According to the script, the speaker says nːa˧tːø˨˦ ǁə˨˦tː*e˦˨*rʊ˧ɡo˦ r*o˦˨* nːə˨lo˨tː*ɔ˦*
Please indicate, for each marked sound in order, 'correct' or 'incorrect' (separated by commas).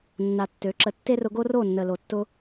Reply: incorrect, correct, incorrect